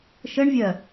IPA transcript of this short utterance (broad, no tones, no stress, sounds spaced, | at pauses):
ʃ ə ɳ vʲ ɜ